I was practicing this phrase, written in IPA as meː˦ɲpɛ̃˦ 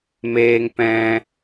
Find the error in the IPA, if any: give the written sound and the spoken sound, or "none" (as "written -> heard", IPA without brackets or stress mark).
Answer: ɲ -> ŋ